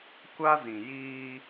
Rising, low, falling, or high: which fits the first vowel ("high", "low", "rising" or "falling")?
high